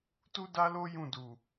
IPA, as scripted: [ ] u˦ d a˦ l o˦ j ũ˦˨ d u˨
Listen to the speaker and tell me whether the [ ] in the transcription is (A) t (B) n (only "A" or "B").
A